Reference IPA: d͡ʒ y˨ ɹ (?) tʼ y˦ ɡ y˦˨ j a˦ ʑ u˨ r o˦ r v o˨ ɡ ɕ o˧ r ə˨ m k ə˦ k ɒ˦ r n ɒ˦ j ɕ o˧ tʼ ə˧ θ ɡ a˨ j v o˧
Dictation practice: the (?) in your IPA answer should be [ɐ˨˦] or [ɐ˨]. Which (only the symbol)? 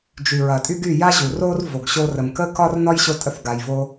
ɐ˨